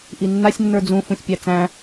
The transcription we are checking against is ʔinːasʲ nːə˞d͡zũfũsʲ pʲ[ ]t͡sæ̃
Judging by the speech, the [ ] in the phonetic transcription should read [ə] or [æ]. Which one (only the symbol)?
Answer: æ